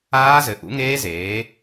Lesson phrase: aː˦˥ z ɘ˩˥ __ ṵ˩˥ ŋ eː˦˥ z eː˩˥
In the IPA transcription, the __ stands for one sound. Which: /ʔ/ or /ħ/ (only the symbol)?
ʔ